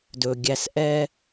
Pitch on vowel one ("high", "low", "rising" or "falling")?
low